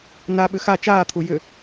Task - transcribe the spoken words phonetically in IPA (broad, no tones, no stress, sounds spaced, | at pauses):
n a ɓ ʏ x a t͡ʃ aː t̪ʰ u j ʏ